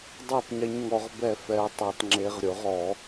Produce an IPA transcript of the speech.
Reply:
dˤ a˥˨ tˤ ɲ ɪ˨˦ ɲ ŋ ɔ˨˦ ʁ b ɛ˥˨ f ɛ˨˦ u̯ tˤ e˨˩˦ tˤ ŋ͡ǁ e˨˦ ʁ ɾʲ ʊ˨˩˦ ʁ ɔ˨˩˦

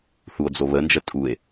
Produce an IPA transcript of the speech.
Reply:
θ u o̯ d͡z o β ə n d͡ʒ ə tʼ u e̯

